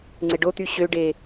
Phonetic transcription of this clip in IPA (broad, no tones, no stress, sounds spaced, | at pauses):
ŋ͡ǀ e ɖ o t̪ y ɕ ø ɖ e